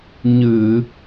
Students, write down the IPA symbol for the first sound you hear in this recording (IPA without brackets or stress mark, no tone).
ɲ